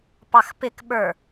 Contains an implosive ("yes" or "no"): yes